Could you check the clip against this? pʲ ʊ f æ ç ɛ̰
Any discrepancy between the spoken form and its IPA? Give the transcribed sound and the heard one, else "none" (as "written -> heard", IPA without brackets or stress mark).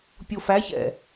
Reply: none